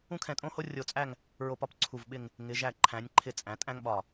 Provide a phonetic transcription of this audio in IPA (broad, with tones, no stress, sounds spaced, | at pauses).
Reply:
ũ˥ kʰ ɛ̃˧ tʼ õ˥ h o˥ rʲ o˧ t͡sʼ æ˥˧ ŋ | ɹ o˧ p ɒ˧ p ǀʰ u˧˩ v ɓ ɪ˥˧ ŋ | ŋ ɪ˩˧ ʒ æ˧˩ ǃʰ æ̃˩˧ nʲ ǃʰ ɪ˧ t͡sʼ æ̃˩˧ tʼ æ̃˥ ŋ ɓ ɒ˧˩